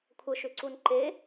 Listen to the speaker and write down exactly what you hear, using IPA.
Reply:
kʷʰəʃʏǀun ǃe

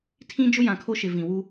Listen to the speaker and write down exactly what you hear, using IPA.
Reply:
tʰĩ˦d͡ʒʊ˦ jã˨kʰo˦ʃɪ˨ vĩ˨ wu˦

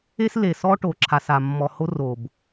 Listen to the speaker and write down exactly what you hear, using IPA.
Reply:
e˦sle˨ sɔ˦ʈo˨ǁʰa˨sa˨ mːɔ˨ho˦r o˨b

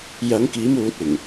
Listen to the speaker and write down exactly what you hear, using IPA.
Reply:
jɐ˨˧ŋkiː˨˧muː˨t̚ ɪ˨˩ŋ

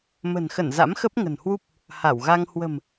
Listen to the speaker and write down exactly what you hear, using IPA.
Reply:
mə̤˨˩nxə˧˩n za̰˧˥mxə˦˥p̚ŋə̤˨˩nhwu˦˥p̚ | ha˧˩wɣa˧ŋ hwə̤˨˩m

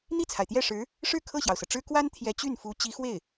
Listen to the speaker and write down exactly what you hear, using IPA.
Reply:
n̪i˥˩t͡sʰa˩ɪ̯t̪jɛ˥˩ʂɻ̩˧˥ | ʂɻ̩˥˧ kʰɤ˥˩ɕjɑ˩ʊ̯sɤ˩ʈ͡ʂɻ̩˥ kwa˥n t̪ʰjɛ˧˥t͡ɕy˥˩nfu˧˥ t͡ɕi˧˥xwe˥˩ɪ̯

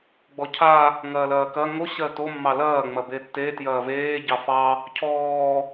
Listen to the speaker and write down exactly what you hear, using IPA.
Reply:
ɡ͡bɔcʰa | ŋɐːlɐːkɐ ŋo ɕɜto mːɑlɐː ŋ͡mɐbetːe tjɐːveː ɟɑfɑ | cʰɔː

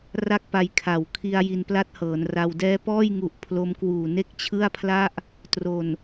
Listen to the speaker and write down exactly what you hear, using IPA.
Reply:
ra˥˩k̚pa˧jkʰa˩˦wkʰi˧a̯ ji˧npla˥˩t̚hɤː˩˦nra˧w dɛː˦˥pɔː˥˩jŋu˨˩ʔ pʰlo˦˥mkwuː˨˩ ne˥˩k̚t͡ɕʰɯ˥˩a̯pʰla˥˩ʔ | tro˨˩n

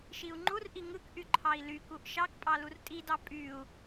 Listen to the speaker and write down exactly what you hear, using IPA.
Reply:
ʃiu̯ŋ͡ǃurʔi ŋɯkʔy ǃʰɑi̯lykuʔ ʃɑkpʼɑ lurtʼidɑ pʼyu̯

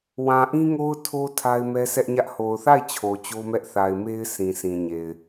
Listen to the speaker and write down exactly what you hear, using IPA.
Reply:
wã˨ʔĩ˦ŋo˦ʊ̯ tʰo˦ tʰa˦ɪ̯mɛ˦ sʰɛ˦ʔɲä˦ʔ ho˨ʊ̯θa˦˨ɪ̯ t͡ɕʰo˨t͡ɕo˦mɛ˦ʔ θa˨ɪ̯me˦ɪ̯ sʰĩ˨sĩ˨ɲe˨ɪ̯

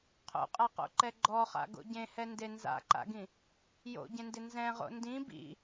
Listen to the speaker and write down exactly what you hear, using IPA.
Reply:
qʰo̰qʼaqo̰ǃɛ ɡ͡ǃɔχa̰ɡo̰ ɟẽhɛnde nza̰ǃa̰ɡĩ | jo̰ɟẽndɪ nzɛ̃ʁo̰ ndĩ bḭ

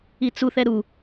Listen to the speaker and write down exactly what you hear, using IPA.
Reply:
it͡suθɛ ɾu

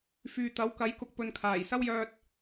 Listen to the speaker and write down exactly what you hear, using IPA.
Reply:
fyː˨t̪ɐ˨˥wkɐ˨˥jkʊ˨k̚ pɵ˧nkʰaː˨˩j sɐ˥wjœː˧t̚

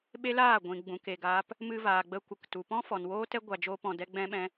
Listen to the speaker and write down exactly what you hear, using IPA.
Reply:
ɓe˦laː˦˨ ɡʷĩ˨ɡ͡bũ˨ ke˧ɡaː˦p | mɨ˧vaː˨ɡ͡bə˧ kʷə˨k tu˨pɔ̃˦ fɔ˨nwoː˦tɛ˦ ɡʷa˧d͡ʒoː˦pɔ̃˧dɛ˦ ɡ͡bɛ̃˦ɓɛ̃˦

